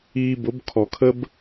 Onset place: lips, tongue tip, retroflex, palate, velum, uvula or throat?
lips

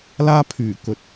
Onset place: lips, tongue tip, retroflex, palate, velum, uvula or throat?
tongue tip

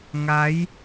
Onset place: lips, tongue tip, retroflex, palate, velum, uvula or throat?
velum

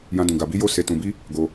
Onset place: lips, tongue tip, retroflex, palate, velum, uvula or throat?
palate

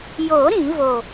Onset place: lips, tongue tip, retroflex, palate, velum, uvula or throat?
palate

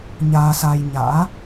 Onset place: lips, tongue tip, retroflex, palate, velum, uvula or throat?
palate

